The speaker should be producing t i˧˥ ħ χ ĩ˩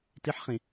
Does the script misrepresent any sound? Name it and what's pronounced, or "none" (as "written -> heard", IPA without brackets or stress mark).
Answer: none